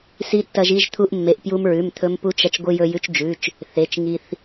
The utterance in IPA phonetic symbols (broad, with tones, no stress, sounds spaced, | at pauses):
s i˧ tː ɐ˧ ʒ i˧ ʒ t̪ʰ u˧ ʔ mː e˩˧˩ ʔ p j u˧ m ɹ ʉ˩˧˩ m t̪ʰ ɵ˧ m p u˧ t͡ʃ ɐ˧ t͡ʃ ɡʷ ɨ˧ j ɵ˧ j ʉ˧ t͡ʃ d͡ʒ ʉ˩˧˩ t͡ʃ | θ e˩˧˩ t͡ʃ ŋ i˧ θ